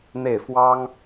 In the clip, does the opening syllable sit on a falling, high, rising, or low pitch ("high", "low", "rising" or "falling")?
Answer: falling